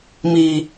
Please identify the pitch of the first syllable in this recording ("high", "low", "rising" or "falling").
low